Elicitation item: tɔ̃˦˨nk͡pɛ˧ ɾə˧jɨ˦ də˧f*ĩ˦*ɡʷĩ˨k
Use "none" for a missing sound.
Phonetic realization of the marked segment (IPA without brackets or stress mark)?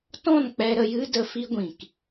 i˦